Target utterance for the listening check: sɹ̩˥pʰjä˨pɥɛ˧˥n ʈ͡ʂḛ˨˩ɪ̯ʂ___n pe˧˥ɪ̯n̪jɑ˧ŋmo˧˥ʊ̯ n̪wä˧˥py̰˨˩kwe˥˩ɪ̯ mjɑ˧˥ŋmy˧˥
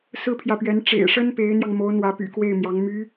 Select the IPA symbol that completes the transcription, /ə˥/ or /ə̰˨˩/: ə˥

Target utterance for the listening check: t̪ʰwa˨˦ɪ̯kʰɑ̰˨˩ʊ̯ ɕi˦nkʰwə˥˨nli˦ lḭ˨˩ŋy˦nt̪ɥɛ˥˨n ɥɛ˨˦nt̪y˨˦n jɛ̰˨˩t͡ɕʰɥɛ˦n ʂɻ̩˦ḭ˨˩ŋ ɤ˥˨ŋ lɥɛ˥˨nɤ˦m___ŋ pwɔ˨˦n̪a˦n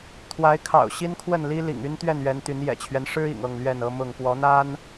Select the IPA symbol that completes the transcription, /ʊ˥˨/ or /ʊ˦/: ʊ˥˨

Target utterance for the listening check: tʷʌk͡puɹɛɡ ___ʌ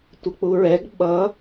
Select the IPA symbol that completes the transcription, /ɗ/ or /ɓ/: ɓ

